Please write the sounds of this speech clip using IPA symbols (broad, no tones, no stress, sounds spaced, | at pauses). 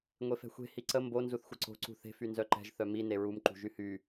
ŋʷ e f ɛ̤ xʷ e̤ h i ǀ ə m b o n z u θ xʷ ə ǀ o̤ ǀ ṳ θ e̤ f y n z œ ǃ ɛ̤ ʒ θ œ m i n e ɹ u m ǃ ṳ ʒ y h y